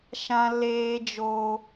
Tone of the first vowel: high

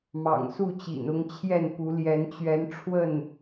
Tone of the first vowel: low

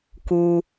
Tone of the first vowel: low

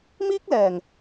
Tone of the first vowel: high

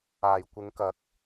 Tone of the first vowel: low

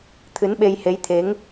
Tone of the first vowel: rising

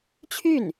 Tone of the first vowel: falling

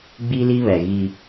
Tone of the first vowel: high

